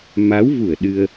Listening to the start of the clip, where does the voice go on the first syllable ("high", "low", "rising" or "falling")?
rising